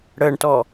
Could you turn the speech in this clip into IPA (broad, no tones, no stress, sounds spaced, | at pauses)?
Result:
ɽ əː ɳ t ɔ